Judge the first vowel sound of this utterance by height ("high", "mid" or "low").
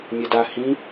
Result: mid